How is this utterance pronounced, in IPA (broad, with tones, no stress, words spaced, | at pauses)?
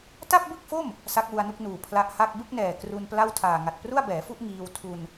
ta˥˩p̚bɯ˥˩k̚fo˥˩m | sa˦˥k̚wu˧a̯nu˥˩k̚nuː˨˩ pʰla˦˥ʔha˥˩k̚ bɯ˥˩k̚nɛː˨˩ kru˧npla˥˩wtʰaː˨˩ ŋa˨˩t̚pru˥˩a̯bɛː˩˦fu˥˩ʔ ŋiː˧wtʰu˧n